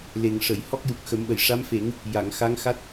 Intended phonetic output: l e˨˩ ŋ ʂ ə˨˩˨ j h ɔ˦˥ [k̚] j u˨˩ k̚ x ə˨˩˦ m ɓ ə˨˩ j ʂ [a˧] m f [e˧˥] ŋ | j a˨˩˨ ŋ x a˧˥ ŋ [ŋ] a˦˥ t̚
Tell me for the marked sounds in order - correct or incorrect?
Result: correct, incorrect: a˧˥, incorrect: e˨˩˦, incorrect: x

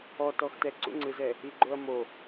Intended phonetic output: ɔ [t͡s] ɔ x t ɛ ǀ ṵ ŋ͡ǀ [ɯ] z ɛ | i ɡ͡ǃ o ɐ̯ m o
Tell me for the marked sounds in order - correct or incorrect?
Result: incorrect: t, correct

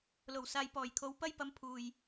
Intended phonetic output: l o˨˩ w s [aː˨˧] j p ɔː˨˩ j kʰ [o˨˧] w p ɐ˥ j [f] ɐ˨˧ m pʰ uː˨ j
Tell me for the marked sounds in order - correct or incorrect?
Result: incorrect: aː˨, correct, incorrect: p

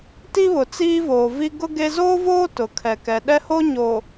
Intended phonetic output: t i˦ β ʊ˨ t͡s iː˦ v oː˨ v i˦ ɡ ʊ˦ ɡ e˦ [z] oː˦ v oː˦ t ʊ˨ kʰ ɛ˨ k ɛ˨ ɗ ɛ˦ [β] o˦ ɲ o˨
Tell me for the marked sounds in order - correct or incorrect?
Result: correct, incorrect: h

